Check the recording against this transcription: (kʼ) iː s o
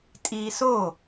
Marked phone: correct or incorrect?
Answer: incorrect